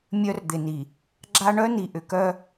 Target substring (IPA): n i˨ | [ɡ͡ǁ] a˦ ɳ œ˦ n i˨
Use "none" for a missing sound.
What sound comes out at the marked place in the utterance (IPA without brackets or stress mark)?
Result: ɡ͡ǁ